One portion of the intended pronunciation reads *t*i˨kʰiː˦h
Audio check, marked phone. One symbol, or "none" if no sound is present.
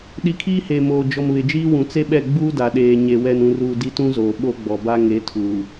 ɗ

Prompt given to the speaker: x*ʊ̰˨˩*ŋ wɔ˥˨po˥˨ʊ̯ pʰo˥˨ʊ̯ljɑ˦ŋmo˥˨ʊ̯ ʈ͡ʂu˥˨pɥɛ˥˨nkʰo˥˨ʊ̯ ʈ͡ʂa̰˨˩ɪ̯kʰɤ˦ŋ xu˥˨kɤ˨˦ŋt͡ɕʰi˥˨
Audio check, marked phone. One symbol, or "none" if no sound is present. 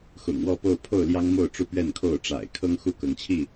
ʊ̰˨˩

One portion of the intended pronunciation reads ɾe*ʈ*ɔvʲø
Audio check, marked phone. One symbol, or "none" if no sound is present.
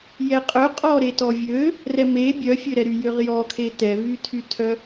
t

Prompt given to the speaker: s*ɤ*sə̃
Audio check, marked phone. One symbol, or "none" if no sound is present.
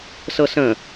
ɤ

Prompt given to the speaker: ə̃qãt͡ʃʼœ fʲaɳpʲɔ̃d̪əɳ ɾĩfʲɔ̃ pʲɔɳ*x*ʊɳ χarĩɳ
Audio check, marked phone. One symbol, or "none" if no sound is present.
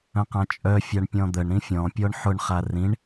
ħ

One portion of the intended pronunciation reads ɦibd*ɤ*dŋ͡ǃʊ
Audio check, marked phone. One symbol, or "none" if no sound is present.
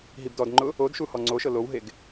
ɔ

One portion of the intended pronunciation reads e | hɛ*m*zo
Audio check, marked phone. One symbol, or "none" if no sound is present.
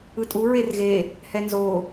n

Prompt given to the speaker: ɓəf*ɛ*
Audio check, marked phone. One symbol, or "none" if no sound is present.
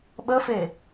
e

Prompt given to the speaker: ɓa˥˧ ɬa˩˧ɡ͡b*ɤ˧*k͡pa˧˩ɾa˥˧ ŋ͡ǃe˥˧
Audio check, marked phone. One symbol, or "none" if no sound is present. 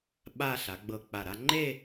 ɤ˧˩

